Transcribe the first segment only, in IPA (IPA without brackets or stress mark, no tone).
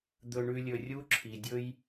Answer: d̪